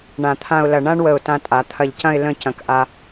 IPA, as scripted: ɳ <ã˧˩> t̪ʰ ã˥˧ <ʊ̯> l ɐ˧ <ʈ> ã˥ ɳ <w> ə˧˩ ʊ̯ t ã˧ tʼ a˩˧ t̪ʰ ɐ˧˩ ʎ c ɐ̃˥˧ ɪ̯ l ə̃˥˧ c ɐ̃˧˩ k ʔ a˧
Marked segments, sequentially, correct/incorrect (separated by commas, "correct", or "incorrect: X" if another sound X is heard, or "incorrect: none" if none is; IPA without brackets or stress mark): correct, correct, incorrect: ɳ, correct